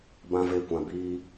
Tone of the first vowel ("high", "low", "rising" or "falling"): high